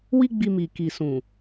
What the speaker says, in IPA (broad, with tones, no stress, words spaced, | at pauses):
wi˦ɡ͡bi˧mi˨ ki˨sũ˨